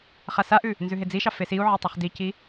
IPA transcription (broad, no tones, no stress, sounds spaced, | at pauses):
χ a s a ʔ ʉ | n z ʉ ɦ e d͡z i ʃ ɑ f e s i u̯ ʕ e tˤ e χ d i c i